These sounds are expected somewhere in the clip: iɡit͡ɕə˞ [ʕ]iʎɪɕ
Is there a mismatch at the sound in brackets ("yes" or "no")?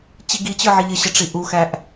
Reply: no